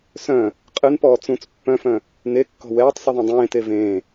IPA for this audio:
s œ̃ | qʼ ɨ n p ɔː t͡s ũ t͡s pː œ̃ f œ̃ | n e kː ɔ̤ w ɛː tˤ sˤ ɨ ðˤ ẽ dˤ ẽː t e v ẽː

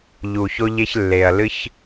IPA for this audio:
ʎ u˨ ç o˧ ʎ e˧ ç lː e˨ ɐ̯ l ɨ˧ ç

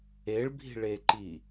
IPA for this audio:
e ɭ bʱ i̤ ɭ e ǃ i

